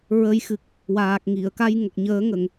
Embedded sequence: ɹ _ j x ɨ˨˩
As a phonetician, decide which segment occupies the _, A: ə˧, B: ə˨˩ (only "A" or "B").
A